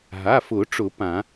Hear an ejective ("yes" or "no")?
no